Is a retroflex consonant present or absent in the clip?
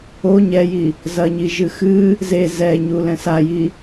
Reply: absent